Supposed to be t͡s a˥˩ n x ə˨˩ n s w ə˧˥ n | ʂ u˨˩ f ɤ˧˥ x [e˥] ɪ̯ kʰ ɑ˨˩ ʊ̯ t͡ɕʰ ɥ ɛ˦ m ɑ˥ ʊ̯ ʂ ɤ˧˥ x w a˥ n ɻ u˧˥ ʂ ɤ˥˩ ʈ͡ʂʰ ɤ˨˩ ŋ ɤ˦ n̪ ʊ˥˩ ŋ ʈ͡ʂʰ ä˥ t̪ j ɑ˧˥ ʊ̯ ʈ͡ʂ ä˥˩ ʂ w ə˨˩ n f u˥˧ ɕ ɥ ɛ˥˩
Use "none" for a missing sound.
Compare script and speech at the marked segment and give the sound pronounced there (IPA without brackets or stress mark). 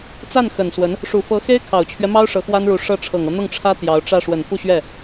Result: e˥